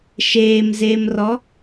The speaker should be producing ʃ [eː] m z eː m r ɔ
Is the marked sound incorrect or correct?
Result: correct